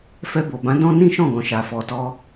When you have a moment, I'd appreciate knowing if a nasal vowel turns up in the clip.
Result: yes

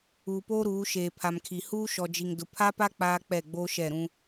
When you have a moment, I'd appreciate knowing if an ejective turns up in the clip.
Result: no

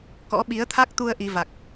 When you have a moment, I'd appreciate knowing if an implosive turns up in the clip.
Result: yes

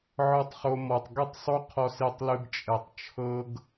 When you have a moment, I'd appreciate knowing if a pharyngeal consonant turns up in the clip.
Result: yes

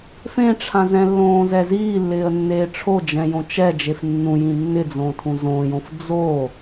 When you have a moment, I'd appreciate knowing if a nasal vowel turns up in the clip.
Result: yes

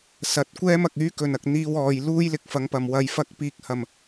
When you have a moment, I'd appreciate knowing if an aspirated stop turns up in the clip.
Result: no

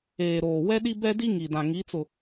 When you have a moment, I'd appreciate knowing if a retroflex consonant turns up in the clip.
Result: no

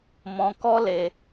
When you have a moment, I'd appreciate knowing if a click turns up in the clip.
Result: no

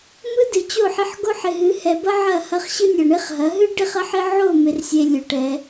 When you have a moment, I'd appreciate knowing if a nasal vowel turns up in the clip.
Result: no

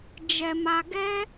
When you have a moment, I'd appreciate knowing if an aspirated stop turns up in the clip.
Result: no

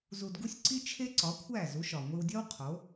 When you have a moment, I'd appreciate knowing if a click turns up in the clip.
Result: yes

